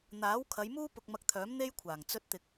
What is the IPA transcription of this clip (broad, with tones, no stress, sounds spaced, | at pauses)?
n̪ aː˨˥ w kʰ ɐ˨˧ j m uː˥ p ʊ˧ k̚ m ɐ˧ k̚ t̪ʰ œː˨˥ m n̪ e˥ j kʷʰ aː˨˩ ŋ t͡s ɵ˧ t̚ t̪ ɪ˨ k̚